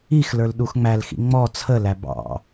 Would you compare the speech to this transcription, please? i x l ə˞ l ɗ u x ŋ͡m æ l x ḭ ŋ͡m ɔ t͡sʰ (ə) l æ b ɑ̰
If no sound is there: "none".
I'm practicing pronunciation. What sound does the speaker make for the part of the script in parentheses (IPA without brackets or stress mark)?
ə